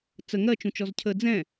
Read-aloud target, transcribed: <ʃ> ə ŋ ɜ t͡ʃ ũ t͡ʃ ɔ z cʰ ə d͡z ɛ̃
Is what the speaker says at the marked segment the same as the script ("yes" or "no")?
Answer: no